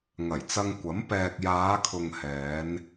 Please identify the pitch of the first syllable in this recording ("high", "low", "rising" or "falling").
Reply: low